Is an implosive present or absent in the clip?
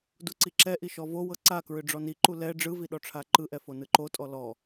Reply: present